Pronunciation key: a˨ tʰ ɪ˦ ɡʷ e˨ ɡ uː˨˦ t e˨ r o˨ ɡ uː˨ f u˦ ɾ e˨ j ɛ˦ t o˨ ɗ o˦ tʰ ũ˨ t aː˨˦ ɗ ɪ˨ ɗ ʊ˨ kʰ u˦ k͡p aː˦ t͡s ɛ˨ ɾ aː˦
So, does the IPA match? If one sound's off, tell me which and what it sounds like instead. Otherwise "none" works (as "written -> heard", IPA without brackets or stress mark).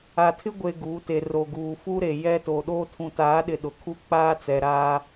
none